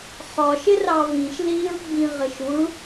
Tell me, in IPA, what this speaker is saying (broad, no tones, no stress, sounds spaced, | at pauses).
χ ɒ ʃ ɪ r ɑ v ĩ ʃ l i ɹ ɡ͡b ĩ ʁ ɪ ʃ u ɭ